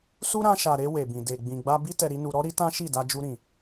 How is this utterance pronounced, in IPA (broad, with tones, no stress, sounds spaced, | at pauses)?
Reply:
s u˦ ɾ ã˧ ʃ a˨ ɾ e˧ w e˨ b ĩ˨ d e˨ ɡ͡b ĩ˨ ɡ͡b a˧ b i˦ t ɛ˧ ɾ i˦ n u˧ ɾ ɔ˦ ɾ i˦ t ã˦ ʃ i˦˨ d a˧ d͡ʒ u˧ ɾ ĩ˨